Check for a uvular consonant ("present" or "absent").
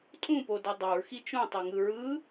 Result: absent